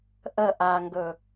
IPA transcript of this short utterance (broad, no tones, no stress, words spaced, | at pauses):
ʔə ʔaŋɡɵ